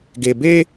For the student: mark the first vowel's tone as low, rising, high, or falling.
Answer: low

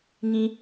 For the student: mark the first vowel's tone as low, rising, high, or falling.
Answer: high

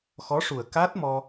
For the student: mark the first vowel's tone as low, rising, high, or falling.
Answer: rising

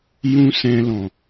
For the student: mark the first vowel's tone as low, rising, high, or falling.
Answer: high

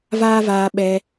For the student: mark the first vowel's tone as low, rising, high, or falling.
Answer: high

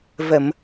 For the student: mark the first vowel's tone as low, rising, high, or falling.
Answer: low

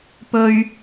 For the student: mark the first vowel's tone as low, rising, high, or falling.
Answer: high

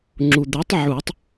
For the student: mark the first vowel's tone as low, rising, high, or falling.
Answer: low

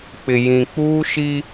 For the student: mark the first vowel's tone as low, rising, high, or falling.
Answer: low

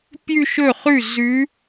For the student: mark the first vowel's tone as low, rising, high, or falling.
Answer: falling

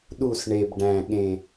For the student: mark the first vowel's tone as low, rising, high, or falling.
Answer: falling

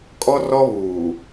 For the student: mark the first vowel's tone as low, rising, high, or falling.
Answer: high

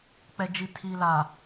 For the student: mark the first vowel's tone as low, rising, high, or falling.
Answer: low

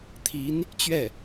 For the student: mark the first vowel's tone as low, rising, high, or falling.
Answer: rising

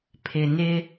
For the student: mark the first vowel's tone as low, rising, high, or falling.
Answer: low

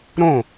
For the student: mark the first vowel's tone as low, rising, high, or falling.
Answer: falling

